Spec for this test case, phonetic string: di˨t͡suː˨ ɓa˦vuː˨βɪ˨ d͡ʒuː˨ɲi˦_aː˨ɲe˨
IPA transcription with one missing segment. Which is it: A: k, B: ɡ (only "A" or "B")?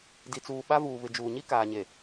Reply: A